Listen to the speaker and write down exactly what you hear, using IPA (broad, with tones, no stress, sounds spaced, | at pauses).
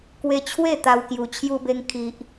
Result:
k w e˧ t͡ɕʰ w e˥˧ t̪ a˧ w k j u˨˩ t͡ɕʰ j u˧ b e˧ ŋ kʰ i˨ ʔ